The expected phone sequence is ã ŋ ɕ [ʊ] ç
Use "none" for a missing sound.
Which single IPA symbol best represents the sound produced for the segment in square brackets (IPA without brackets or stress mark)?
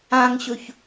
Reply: ɵ